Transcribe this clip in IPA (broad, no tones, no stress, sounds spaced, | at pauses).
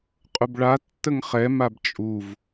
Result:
qʼ ʊ b ɭ a tː ə ŋ χ ɛ m a b t͡ʃʼ u v